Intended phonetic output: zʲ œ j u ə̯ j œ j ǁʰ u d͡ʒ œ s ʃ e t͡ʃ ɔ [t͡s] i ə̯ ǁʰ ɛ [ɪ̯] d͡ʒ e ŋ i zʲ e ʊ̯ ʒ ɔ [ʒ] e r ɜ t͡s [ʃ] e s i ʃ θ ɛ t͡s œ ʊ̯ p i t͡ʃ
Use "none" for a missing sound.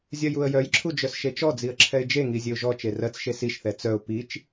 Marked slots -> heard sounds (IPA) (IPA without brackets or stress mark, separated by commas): d͡z, ɪ̯, t͡ʃ, ʃ